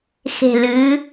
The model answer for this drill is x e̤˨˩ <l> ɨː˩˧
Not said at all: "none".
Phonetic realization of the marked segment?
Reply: l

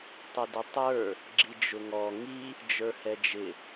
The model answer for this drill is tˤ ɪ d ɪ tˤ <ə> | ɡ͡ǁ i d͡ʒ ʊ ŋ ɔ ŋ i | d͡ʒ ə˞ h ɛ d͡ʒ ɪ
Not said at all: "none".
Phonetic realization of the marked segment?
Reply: ə˞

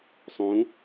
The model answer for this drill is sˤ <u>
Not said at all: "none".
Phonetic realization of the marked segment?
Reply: ũ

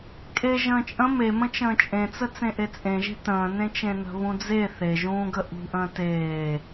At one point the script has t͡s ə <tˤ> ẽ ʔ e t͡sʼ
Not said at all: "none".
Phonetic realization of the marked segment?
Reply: t͡s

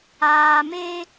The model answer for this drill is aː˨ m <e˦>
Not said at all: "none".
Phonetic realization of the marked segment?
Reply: e˦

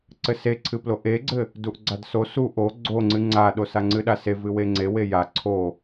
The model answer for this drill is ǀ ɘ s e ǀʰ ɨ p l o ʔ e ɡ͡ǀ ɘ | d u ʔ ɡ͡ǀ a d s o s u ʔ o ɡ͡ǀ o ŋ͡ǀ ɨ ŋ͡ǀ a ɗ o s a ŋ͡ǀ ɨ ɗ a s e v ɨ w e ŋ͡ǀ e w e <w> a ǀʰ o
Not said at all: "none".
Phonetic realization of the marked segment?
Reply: j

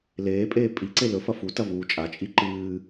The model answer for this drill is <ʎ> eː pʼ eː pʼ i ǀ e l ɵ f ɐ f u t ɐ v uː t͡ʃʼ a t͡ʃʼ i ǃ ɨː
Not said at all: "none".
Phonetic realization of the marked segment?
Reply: l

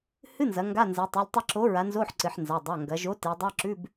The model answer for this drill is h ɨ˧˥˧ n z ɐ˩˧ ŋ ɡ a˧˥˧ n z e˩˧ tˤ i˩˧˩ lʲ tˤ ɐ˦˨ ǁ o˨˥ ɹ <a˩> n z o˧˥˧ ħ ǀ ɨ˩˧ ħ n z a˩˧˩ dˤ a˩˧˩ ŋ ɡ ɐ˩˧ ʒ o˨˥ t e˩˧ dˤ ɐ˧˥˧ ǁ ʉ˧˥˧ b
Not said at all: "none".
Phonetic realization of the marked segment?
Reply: a˨˥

